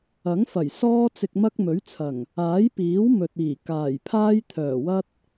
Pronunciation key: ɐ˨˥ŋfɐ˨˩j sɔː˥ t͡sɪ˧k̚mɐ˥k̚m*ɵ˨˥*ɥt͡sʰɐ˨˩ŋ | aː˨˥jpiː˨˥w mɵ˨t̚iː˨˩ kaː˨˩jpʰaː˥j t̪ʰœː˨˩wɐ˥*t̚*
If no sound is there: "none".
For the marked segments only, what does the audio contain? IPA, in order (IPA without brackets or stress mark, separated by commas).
ɵ˨˥, t̚